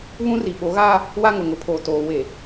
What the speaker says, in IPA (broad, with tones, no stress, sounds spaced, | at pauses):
β ũ˦ r i˨ ɓ o˨˦ ɣ aː˦ | w a˦ ŋ ʊ˨ ŋ ʊ˨ pʰ oː˨ t oː˨ w e˨